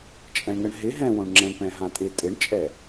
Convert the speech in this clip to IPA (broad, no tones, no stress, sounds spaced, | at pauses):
t͡ʃʼ ɛ̃ ɳ ŋ ə ɳ ɦ ɪ ɦ ɛ̃ w õ ɳ ŋ͡ǁ ɛ̃ ɳ p ɛ̃ ɦ ã tʼ ɪ tʼ ɪ ɳ t͡ʃʼ ɛ